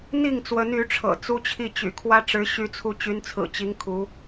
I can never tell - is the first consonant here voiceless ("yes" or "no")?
no